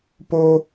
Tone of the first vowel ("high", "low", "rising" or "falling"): high